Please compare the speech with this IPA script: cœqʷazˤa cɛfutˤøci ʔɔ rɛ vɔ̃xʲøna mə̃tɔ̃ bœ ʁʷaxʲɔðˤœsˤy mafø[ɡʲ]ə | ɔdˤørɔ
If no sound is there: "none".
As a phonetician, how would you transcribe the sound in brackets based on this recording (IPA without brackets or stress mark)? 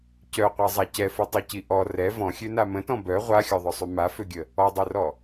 ɡʲ